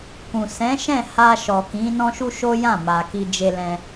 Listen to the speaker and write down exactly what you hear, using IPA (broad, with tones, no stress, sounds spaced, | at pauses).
k ũ˨ s ɛ̃˨˦ ʃ ɛ̃˦˨ h a˧ ʃ ɔ˨ k ĩ˨˦ n ɔ̃˦ ʃ u˦ ʃ o˦ j ã˦˨ m a˨ k i˧ d͡ʒ e˧ l ɛ̃˧